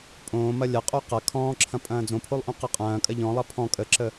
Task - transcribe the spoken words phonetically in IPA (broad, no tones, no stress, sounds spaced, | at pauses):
pʼ õː m ɐ lʲ ɐ qʼ o q ɐ kʰ ɔ̃ː ǁʰ ɐ̃ pʼ ɐ̃ː d͡z õ pʰ o lˠ ʔ õ q ə qʼ ɐ̃ː kʼ ɐ ʎ ɔ̃ lˠ ɐ pʰ ɔ̃ kʼ ə ǁ ə